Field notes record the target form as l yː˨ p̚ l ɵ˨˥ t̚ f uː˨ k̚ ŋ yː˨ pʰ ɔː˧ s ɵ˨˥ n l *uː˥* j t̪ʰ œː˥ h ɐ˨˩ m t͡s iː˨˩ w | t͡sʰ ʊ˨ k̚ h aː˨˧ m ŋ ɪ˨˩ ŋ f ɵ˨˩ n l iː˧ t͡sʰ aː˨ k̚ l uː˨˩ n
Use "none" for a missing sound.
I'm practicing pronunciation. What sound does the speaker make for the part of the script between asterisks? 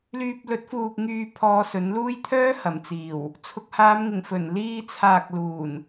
uː˥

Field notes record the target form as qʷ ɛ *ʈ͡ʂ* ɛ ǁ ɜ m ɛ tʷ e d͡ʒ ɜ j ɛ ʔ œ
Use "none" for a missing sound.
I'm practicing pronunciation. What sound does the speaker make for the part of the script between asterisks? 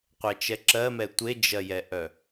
t͡ʃ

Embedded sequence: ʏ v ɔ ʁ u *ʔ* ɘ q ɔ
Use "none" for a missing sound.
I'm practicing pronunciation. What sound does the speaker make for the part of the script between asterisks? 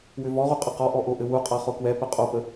qʼ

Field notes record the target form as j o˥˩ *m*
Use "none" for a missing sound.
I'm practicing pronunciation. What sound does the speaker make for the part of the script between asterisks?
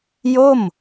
m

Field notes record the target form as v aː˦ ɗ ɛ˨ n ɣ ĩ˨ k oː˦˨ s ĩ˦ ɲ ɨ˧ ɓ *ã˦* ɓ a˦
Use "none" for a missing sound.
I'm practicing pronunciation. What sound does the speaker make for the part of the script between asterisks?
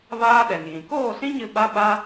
a˦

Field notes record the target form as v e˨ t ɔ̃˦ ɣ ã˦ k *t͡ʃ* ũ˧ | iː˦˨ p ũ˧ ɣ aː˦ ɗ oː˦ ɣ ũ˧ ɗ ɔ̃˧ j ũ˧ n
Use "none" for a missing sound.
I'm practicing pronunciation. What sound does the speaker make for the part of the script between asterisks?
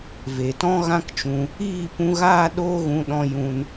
t͡ʃ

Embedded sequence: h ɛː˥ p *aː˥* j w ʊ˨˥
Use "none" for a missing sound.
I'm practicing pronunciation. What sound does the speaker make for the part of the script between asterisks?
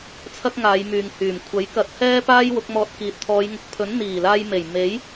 aː˥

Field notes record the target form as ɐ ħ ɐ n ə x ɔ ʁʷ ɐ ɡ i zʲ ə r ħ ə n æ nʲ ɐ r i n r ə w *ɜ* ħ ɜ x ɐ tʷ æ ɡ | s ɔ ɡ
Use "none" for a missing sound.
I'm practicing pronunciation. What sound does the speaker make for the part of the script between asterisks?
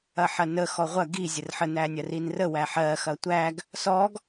æ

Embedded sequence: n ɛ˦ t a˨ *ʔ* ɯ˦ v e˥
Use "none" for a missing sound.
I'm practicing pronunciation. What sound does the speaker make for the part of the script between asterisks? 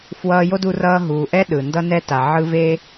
ʕ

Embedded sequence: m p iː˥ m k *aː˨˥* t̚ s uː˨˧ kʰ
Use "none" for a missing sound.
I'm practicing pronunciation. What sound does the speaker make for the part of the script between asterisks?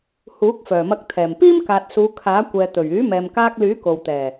aː˨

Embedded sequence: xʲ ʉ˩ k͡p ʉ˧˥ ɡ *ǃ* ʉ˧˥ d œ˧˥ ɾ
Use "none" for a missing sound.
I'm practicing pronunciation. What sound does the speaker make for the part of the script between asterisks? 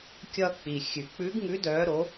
ŋ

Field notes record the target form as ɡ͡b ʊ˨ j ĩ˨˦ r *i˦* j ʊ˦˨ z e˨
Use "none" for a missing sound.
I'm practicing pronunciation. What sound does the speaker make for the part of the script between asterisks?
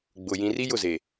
i˦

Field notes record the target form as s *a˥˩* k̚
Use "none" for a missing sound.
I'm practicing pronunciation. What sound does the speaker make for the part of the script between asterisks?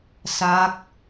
a˦˥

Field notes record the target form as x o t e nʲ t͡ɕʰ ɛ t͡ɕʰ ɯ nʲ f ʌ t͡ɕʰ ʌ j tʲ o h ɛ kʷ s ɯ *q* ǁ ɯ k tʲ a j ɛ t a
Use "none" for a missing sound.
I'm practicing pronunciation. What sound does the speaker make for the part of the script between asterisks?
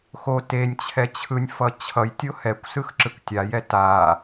x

